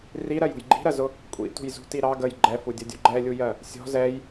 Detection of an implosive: absent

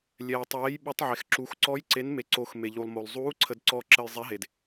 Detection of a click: present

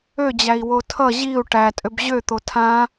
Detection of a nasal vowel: present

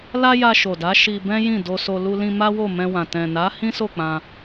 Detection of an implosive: absent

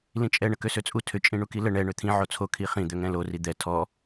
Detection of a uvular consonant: present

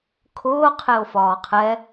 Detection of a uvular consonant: present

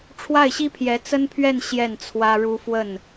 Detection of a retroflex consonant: present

